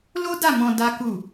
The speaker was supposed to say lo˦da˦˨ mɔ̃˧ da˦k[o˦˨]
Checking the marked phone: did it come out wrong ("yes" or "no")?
yes